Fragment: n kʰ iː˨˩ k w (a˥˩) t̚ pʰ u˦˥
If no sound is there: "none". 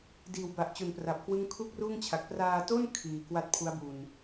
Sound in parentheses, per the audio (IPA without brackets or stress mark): a˥˩